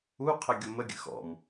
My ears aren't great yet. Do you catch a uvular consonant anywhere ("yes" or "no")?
yes